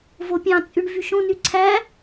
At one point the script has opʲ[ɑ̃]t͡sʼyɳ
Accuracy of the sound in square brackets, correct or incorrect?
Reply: correct